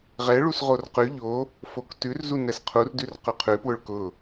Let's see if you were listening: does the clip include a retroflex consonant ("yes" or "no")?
yes